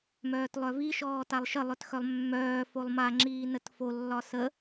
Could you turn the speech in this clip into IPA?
m œː t lˠ œ v i ʃ ɔː t a lˠ ʃ ə lˠ œ t x œ lˠ mː œː f o lˠ m a ŋ͡ǁ iː n ə t f o lː ɒ s ə

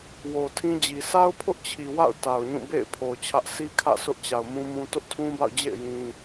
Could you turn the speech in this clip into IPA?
w o˨ tʰ ĩ˦ d͡ʑ i˨ sʰ a˦ ʊ̯ pʰ ʊ˦ ʔ t͡ɕʰ i˨ w a̰˦˨ ʊ̯ t a˨ ʊ̯ ɲ ũ˦˨ b ḛ˦˨ ɪ̯ pʰ o˨ ʊ̯ t͡ɕʰ ä˦ ʔ sʰ i˦ kʰ ä̰˦˨ sʰ ʊ˦ ʔ t͡ɕ a˨ ʊ̯ m ũ˦ m ũ˦ t ʊ˦ ʔ tʰ ũ˦ b a̰˦˨ ʊ̯ d͡ʑ ḛ˦˨ ɪ̯ j ĩ˦

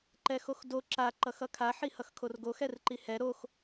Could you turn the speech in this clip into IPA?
ǃ ɛ x o x d o ǁ a ǃ ʌ x ʌ kʰ a ħ i h ʌ x kʰ o r ɡ o x ɛ r ǃ i h ɛ ɾ o x

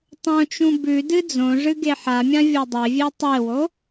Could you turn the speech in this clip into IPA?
tˤ õ t͡ʃ ũ b ʉ d ɨ d͡z õ ʐ ɨ ɡ e ħ a mʲ ã vʲ o dˤ e vʲ e tˤ e w o

